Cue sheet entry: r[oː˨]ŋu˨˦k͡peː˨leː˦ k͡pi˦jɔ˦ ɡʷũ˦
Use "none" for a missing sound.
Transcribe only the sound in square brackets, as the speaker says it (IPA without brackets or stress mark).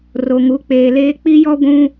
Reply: o˨